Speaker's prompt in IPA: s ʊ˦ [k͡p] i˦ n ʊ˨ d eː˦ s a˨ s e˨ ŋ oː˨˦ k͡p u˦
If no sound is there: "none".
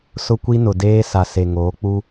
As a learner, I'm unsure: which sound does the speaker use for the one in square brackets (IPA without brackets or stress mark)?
kʷ